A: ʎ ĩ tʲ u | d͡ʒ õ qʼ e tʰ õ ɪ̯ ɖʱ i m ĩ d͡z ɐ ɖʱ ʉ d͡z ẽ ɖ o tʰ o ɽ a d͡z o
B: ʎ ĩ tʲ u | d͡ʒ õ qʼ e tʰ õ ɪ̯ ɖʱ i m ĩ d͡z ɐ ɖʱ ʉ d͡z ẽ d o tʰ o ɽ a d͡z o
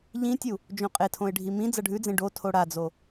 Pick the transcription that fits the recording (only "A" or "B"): A